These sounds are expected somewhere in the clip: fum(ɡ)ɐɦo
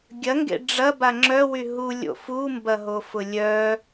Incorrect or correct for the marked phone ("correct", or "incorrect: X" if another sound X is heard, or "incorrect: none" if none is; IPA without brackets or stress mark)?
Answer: incorrect: b